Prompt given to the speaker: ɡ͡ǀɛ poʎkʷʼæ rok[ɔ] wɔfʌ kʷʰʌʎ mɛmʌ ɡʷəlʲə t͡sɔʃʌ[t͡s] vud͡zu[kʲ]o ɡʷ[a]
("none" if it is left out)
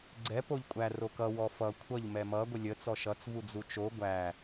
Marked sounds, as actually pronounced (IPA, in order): ʌ, t͡s, t͡ʃ, æ

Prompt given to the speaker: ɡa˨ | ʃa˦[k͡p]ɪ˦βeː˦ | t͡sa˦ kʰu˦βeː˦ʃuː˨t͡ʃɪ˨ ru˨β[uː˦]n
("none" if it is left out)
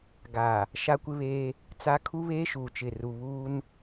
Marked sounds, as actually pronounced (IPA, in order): kʷ, uː˦

